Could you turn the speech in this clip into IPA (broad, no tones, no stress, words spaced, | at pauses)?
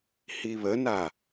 hiβəna